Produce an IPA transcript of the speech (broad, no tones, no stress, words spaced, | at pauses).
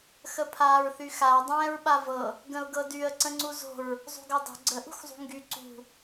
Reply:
xəpʰaːɹθyxaə̯ dˤɛ̃ːɹɓavɤ | ɡə̃ʊ̯ɡɤdyə̯ ǀə̃ŋ͡ǀuzo̤ɹ | zˤṳɡɤdˤo̤ ɡ͡ǀə ʔṳxzˤṳŋɡy ǀṳ